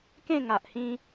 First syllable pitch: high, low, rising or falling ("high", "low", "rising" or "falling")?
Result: falling